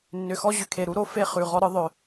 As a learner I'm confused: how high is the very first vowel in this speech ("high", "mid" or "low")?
high